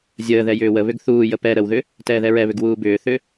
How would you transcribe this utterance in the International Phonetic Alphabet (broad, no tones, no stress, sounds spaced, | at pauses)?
zʲ əː ð ɛ j ʏː w ə β ʏ ɡ θ uː j ə p ɛ ɾ ə w ð ʏ | t ɛː ð ɛ ɹ ɛ β ʏ ɡ w uː b ʏː θ ʏ